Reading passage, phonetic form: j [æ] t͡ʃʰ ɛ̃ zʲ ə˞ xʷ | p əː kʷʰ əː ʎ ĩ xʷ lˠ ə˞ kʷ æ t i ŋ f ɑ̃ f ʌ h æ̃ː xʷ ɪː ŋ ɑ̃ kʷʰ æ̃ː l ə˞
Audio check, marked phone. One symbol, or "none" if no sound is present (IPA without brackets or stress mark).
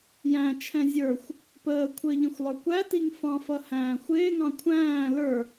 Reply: æ̃